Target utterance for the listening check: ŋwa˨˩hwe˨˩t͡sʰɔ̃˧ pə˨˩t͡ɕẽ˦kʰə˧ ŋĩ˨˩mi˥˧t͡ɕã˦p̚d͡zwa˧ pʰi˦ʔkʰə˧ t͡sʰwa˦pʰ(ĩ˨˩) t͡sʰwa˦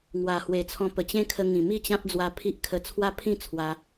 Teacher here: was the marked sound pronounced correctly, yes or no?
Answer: no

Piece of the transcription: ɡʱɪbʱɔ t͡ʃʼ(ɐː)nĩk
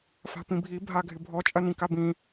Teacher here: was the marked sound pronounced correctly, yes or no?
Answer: no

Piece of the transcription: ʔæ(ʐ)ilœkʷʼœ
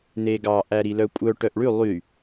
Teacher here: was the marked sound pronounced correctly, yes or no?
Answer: no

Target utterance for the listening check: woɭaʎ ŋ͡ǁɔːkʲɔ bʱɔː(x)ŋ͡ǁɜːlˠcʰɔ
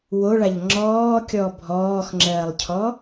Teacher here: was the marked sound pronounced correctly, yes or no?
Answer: yes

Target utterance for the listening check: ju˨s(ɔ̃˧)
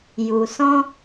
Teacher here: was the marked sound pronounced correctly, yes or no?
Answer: yes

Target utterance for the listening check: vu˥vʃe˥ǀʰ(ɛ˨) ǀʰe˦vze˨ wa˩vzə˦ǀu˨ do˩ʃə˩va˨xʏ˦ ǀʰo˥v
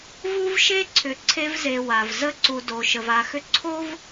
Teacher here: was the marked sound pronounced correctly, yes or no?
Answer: no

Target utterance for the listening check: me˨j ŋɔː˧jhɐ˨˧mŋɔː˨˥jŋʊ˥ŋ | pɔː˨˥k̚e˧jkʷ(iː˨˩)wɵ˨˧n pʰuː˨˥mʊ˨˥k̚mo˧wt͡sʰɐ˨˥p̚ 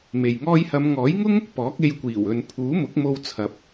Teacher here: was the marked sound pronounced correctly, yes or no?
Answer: yes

